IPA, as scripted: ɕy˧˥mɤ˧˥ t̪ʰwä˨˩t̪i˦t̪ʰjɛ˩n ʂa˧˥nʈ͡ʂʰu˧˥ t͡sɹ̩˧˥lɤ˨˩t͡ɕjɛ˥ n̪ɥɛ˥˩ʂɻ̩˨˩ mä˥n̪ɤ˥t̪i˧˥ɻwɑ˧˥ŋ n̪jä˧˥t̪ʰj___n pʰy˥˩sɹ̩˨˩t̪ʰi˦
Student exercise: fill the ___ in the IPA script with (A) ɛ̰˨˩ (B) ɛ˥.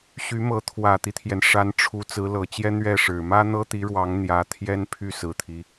B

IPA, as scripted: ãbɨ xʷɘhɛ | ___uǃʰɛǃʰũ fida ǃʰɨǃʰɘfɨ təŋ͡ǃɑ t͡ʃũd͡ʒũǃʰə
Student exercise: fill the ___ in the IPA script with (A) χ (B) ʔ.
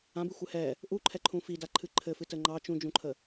B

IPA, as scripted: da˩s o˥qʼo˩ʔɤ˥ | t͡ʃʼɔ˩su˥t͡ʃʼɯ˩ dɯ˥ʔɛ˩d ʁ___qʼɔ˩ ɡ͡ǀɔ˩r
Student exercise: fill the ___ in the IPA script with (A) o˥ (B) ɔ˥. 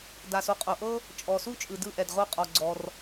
A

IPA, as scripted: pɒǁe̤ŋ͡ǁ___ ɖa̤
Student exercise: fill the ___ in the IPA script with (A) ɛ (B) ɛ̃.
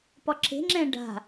B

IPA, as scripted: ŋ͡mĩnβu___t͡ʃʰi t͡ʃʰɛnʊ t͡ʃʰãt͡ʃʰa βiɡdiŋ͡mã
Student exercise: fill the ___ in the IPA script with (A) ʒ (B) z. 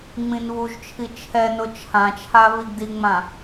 A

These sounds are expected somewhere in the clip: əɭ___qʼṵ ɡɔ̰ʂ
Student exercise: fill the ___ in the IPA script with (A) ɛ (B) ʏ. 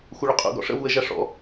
B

